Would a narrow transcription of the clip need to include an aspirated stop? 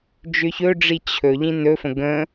yes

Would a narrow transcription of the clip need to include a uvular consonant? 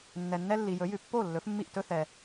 no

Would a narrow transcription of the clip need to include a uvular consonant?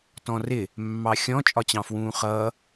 yes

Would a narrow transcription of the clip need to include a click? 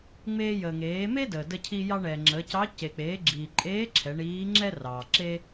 yes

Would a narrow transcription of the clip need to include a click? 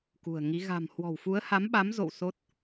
no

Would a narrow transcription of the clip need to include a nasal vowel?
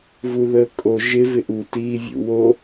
no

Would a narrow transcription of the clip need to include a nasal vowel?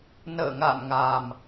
no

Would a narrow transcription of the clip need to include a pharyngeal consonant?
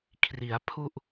no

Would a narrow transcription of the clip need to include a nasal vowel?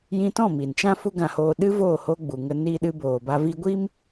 yes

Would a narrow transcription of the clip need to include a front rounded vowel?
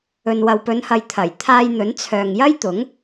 yes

